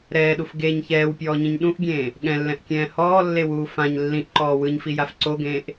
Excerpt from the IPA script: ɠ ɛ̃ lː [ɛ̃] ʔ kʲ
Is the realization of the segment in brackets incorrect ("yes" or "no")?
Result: no